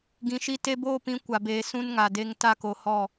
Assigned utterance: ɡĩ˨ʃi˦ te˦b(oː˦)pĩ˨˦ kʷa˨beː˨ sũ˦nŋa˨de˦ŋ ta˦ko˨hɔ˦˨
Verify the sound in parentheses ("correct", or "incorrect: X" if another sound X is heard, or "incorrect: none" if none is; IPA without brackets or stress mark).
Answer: correct